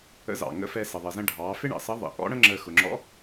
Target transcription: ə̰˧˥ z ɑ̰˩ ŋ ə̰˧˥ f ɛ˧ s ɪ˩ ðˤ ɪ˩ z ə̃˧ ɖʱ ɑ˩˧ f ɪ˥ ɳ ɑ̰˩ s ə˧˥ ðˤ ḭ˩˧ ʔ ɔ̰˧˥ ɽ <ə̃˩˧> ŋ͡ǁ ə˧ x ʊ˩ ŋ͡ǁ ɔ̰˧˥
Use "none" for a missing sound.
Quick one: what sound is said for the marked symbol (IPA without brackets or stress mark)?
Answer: ə̃˥